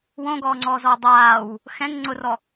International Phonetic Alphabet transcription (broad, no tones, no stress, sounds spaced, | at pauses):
w õ ɡ ɔː ŋ͡ǀ ɔː z ɔː dˤ aː w | x ɛ̃ ŋ ŋ͡ǀ ʊ r ɔ